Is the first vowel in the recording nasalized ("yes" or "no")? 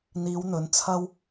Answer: no